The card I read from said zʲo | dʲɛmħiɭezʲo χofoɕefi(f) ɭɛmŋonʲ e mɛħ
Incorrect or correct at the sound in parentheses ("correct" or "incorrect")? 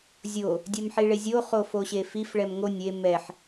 correct